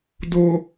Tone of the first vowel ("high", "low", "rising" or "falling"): low